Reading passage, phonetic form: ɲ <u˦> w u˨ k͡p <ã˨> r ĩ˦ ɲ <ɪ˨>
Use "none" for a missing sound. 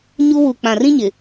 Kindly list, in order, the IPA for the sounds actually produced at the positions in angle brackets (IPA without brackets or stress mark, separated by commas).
u˦, ã˨, ɪ˨